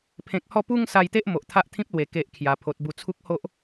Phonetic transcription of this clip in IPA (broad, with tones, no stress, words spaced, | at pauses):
pʰẽ˨k̚hɔ˧pu˧ŋ sa˧jt̪e˦ʔ mo˨ʔt̪ʰa˦ʔt̪ʰĩ˦p̚lwe˨˩ ke˨ʔ kʰja˨˩pʰo˨t̚bu˧ t͡sʰu˦k̚ho˦ʔ